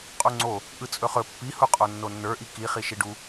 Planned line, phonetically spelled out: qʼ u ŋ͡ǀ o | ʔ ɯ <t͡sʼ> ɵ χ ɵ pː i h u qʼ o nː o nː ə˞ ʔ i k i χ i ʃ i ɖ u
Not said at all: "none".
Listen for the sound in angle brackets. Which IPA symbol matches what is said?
t͡sʼ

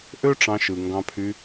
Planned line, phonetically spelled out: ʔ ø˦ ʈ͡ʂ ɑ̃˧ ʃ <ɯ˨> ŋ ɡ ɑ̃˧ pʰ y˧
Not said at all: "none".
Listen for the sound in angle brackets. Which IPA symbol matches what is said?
ɯ˨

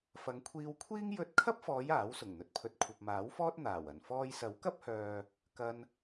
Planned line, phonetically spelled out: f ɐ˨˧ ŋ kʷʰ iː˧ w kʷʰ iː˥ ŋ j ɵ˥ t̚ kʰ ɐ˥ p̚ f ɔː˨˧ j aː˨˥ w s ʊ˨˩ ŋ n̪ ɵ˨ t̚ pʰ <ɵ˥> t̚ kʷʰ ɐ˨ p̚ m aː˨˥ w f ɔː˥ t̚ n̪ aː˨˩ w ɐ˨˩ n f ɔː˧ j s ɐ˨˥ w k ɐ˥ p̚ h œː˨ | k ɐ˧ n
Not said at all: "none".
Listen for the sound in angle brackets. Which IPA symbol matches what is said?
ɵ˧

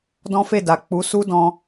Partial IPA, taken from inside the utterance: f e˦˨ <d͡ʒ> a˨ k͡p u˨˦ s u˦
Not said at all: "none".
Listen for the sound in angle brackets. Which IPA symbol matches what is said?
d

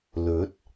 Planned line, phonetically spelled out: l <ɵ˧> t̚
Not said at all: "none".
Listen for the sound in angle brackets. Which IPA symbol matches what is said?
ɵ˨˥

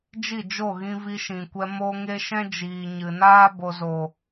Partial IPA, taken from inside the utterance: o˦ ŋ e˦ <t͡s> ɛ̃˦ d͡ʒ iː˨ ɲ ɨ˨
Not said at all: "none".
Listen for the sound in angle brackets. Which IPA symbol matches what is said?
ʃ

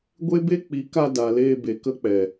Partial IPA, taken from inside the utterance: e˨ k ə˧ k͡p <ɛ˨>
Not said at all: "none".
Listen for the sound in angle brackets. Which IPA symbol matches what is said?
ɛ˨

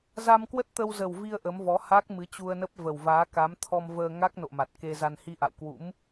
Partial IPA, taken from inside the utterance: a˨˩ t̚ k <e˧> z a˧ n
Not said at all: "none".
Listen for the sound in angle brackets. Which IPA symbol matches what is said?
e˧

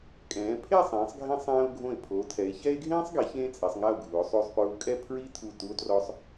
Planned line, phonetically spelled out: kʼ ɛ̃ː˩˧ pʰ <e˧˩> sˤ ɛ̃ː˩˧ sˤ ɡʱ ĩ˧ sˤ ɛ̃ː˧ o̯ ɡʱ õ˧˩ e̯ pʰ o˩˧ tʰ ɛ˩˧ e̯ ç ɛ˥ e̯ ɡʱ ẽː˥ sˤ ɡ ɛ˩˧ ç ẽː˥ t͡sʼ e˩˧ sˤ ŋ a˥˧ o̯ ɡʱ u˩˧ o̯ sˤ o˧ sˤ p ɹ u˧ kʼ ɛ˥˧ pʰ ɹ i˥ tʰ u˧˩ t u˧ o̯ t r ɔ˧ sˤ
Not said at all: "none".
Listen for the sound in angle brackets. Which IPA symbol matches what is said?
e˥˧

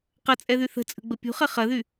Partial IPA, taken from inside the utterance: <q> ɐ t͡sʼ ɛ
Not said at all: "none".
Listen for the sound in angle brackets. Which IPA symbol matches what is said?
q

